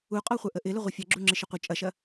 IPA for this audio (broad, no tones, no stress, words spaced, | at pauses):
uqʼɔχʷœʔə ʔɪlɪ ʁʷɪfʲɐɡ͡ǁu ŋ͡ǁɪʃɪqʷə t͡ʃʼɐʃɐ